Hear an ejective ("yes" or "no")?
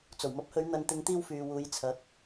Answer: no